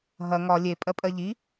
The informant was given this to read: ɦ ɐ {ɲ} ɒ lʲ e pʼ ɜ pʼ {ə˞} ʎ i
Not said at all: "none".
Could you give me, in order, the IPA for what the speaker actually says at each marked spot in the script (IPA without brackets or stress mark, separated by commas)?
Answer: ŋ, ɜ